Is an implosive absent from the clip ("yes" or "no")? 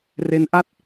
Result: yes